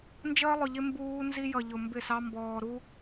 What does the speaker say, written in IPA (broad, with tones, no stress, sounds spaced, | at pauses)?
n d͡ʒ əː˦ lˠ ʊ˨ ʎ ɪ˦ m b uː˦ n z i˦ j ʌ˨ ʎ ʊ˨ m b ɪ˦˨ s ɑ˦ m b ɔː˨ ɾ u˦